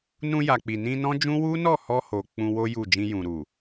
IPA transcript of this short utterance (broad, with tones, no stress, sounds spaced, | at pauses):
n ũ˧ j a˨ k͡p i˨ n ĩ˧ n ɔ̃˦ d͡ʒ ũ˦ w u˦ n ɔ˦˨ h ɔ˧ h o˧ k͡p ũ˧ w o˦ j u˦˨ d͡ʒ ĩ˧ j ũ˨ ɾ u˨